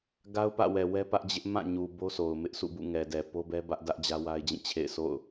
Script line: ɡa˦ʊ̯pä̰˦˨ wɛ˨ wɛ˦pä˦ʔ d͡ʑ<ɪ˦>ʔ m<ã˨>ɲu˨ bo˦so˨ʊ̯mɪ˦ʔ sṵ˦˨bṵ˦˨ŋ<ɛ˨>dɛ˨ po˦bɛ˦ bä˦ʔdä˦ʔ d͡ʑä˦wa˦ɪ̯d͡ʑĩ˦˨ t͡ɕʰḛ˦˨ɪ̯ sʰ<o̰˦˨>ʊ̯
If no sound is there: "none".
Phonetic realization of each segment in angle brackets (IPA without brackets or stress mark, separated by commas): ɪ˦, ã˦˨, ɛ˨, o̰˦˨